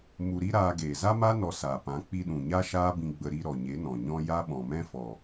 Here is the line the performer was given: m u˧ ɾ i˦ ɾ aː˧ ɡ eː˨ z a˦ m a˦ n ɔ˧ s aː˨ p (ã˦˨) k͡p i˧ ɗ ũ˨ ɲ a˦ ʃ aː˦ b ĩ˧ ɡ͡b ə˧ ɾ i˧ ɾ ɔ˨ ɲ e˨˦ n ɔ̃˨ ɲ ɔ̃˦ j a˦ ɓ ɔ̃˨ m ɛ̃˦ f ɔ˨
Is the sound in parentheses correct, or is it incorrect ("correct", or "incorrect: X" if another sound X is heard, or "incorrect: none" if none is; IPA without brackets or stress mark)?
incorrect: ã˨˦